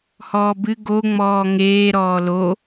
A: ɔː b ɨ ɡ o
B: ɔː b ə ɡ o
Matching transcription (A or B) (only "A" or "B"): A